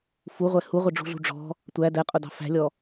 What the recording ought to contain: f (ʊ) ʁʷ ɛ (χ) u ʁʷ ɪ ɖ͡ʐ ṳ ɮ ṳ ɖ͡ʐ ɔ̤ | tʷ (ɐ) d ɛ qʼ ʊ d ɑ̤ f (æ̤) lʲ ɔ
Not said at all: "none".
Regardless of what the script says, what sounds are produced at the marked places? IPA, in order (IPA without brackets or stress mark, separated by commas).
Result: u, h, æ, æ̤